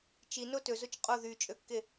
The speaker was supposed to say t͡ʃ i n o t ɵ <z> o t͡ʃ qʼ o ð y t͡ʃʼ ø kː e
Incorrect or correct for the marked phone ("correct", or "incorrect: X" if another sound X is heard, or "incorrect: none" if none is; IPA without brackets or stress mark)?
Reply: correct